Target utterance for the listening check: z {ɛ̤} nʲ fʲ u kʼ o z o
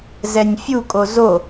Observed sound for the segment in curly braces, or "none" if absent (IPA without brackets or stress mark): ɛ